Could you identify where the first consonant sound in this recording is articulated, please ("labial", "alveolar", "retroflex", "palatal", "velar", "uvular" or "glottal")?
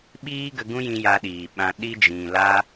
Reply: labial